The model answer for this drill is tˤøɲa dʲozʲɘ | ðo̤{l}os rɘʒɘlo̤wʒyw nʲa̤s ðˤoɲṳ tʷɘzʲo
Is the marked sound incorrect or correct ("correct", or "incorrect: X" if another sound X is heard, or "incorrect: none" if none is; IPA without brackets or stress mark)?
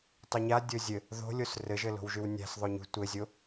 incorrect: lʲ